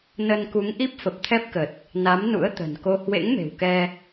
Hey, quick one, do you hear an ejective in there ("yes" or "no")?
no